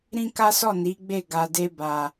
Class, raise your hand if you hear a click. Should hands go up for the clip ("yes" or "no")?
no